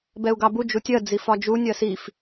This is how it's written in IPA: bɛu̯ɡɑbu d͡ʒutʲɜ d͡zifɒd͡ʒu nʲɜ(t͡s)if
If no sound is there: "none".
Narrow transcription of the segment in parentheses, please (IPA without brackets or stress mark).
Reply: s